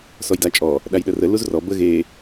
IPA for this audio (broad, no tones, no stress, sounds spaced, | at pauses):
s ɔ j d a t͡ʃʼ ɔ | ɗ a j ɗ ə r ə l u z r ɔ b ə ɣ e